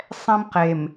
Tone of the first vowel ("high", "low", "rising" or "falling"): high